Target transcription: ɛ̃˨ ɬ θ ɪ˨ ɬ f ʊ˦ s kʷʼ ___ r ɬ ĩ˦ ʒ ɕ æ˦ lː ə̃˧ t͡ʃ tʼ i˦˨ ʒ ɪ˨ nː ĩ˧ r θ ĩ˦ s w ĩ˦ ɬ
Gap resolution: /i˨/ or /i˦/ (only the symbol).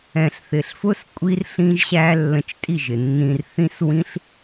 i˦